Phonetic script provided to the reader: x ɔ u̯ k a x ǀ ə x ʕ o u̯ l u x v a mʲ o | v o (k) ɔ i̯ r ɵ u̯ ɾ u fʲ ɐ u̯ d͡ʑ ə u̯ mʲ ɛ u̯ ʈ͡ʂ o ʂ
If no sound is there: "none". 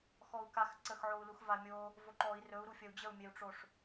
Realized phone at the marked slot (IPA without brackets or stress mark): ǃ